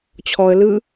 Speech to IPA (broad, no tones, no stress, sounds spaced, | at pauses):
t͡ɕʰ ɔ ə̯ l ɯ